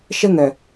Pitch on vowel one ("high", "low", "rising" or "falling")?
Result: high